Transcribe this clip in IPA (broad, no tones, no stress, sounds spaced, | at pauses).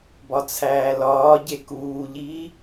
b ɒ t͡sʰ æː l ɒː ɟ e k uː ʎ iː